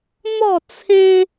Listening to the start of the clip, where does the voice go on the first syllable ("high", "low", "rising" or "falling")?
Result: falling